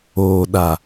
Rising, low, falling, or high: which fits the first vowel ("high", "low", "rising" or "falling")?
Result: low